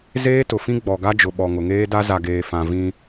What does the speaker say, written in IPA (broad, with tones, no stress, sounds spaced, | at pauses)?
z eː˦ t ʊ˨ f ĩ˦ ɡ͡b ɔ˨ ɡ a˦ d͡ʒ ʊ˨ ɓ ɔ˨ ŋ ʊ˨ ŋ eː˦ d a˦ z a˨ ɡ eː˨ f ã˨ v ĩ˦